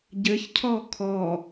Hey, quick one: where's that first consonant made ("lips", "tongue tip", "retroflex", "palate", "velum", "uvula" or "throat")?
palate